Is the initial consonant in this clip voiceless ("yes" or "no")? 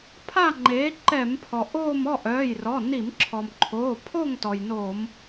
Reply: yes